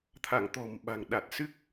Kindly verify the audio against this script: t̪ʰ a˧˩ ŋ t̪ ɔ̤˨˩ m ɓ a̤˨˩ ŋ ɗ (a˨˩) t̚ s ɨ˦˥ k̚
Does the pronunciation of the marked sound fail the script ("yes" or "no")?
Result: no